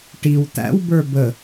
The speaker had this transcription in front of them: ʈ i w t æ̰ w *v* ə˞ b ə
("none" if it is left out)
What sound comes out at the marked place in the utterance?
b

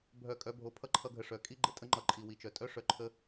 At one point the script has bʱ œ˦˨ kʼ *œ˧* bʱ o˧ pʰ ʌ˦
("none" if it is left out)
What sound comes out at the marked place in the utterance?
œ˦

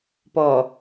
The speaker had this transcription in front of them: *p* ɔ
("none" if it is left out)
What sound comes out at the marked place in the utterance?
p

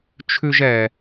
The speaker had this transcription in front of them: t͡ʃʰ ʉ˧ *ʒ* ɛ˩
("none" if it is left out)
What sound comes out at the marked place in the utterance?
ʒ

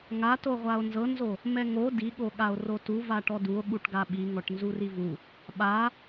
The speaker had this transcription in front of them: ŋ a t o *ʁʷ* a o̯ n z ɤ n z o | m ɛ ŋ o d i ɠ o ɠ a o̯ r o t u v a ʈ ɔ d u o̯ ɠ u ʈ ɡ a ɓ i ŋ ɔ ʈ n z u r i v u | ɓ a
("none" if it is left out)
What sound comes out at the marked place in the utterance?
ʁʷ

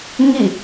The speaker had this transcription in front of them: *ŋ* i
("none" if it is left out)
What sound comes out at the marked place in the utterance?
ŋ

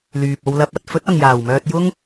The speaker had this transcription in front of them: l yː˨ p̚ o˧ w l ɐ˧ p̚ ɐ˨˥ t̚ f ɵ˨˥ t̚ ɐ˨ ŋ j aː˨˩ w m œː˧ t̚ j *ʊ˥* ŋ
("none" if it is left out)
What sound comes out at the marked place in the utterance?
ʊ˥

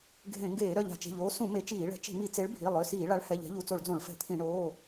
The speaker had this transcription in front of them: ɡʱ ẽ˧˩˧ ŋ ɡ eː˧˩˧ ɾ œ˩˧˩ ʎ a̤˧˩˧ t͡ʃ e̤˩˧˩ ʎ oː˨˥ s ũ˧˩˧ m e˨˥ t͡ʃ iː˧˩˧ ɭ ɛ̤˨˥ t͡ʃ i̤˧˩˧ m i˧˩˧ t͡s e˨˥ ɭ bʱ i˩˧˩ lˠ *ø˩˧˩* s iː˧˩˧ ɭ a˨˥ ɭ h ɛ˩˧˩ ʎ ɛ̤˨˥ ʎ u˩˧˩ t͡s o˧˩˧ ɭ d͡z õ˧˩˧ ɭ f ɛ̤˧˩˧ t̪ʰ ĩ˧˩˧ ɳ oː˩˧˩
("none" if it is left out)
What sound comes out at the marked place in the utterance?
ø˩˧˩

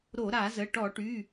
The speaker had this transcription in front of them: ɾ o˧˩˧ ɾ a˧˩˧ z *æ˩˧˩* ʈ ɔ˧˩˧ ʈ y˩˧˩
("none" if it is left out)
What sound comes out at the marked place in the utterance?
ə˩˧˩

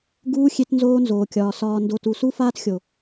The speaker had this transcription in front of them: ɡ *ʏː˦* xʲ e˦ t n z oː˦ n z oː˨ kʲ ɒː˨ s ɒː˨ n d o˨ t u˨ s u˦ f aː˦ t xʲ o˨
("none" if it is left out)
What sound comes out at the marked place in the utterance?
uː˦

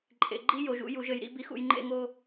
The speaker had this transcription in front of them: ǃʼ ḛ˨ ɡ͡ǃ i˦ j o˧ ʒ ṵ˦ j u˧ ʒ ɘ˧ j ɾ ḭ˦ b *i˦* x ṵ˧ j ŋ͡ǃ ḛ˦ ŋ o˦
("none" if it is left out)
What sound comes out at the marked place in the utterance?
i˦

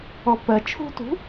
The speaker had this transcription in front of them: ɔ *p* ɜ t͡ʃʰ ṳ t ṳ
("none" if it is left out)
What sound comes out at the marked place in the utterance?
p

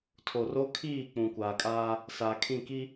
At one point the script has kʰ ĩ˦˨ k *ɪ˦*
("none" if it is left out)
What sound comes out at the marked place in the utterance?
i˦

